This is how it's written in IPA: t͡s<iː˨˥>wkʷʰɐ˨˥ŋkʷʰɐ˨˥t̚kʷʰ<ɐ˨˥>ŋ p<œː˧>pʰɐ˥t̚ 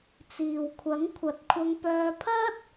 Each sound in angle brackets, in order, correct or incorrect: incorrect: iː˨, incorrect: ɐ˧, correct

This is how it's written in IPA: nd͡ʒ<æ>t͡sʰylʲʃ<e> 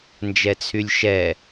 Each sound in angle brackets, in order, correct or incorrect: incorrect: ɛ, incorrect: ɛ

